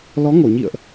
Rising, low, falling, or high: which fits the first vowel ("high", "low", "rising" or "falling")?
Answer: rising